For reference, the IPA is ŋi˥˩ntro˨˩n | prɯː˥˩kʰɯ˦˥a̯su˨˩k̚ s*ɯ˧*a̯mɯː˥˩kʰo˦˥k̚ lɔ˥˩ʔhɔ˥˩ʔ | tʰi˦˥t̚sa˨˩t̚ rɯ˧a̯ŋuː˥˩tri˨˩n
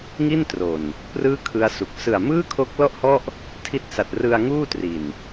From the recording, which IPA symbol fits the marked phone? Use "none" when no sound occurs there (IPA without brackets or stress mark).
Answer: ɯ˨˩